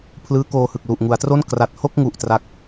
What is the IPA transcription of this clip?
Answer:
pʰlɯː˦˥koː˧hɯ˨˩k̚ lu˨˩ʔŋu˩˦a̯tro˥˩n kra˨˩t̚ho˥˩k̚ŋu˨˩ʔ tra˦˥k̚

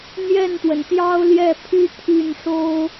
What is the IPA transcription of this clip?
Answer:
n̪jɛ˥˩nt̪wə˩n t̪jɑ˥ʊ̯ljɛ˥˩pʰy˥ t̪ʰy˥˩nʂo˥ʊ̯

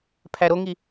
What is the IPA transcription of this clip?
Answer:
pʰæɾoŋi

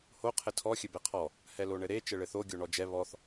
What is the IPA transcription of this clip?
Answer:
ho qʰɘtʰɔ xʲɘbɛqʰɔ | hɛloɳɘɾe t͡ʃɘɭɘθo ɡʲoɳɔd͡ʒɛ βɔθ

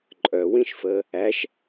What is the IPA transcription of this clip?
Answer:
ǃʼœwĩʃfəː | æʃ

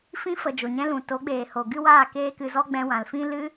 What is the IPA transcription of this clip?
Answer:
fĩ˧fə˨ d͡ʒo˨ɲɛ̃˦lũ˨ to˨˦ɡ͡beː˨ ho˨ɡɨ˦waː˦˨ keː˦kɨ˧zɔ˦ɡ͡bɛ̃˧ wã˨lfĩ˦ lɨ˦

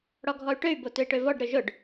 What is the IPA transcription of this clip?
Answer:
ɽɔɡʱɔy̯ʈøy̯ botøi̯ʈøvɔɖ ɾøʒʊɖ

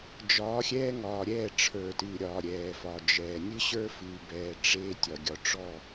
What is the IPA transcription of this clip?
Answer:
d͡ʒɒː˨˦xʲɛː˦ŋɒː˨ ɾʲɛː˦˨ʈ͡ʂʰə˞˨tɨː˨ɾʲɒː˨ ɾʲɛː˨fɒ˨d͡ʒɛː˨ nʲɨ˦ɕə˞˦fɨː˨bɛː˨ ʈ͡ʂeː˦ tʲɒ˨ɡʲɒ˨ ʈ͡ʂɔ˦˨

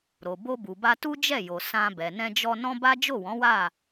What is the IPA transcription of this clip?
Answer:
ɾo˨ bo˧bu˨ba˧ tu˦d͡ʒɛ˦˨jo˨ sã˧ bɛ˨nɛ̃˧d͡ʒɔ˧ nɔ̃˦ba˦ d͡ʒo˦˨wɔ̃˨˦wa˦˨

